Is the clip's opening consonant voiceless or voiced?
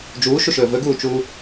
voiced